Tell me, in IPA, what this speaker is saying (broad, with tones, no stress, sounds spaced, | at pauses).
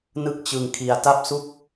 n ɯ˥˩ k̚ t͡ɕ ɯ˧ ŋ kʰ i˧ a̯ t a˥˩ p̚ s u˥˩ k̚